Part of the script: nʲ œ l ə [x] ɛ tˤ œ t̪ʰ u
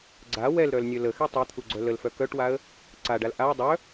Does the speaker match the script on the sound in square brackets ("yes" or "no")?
yes